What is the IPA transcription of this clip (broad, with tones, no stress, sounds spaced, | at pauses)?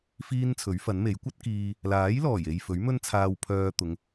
f iː˥ n t͡sʰ ɵ˨˥ ɥ f ɐ˨˥ n m e˨˥ j kʷ ɐ˥ t̚ k iː˧ | l aː˨˥ j l ɔː˨˩ j e˨ j f ɵ˨˥ ɥ m ɵ˥ n t͡sʰ aː˧ w pʰ œː˧ t̪ ʊ˨˧ ŋ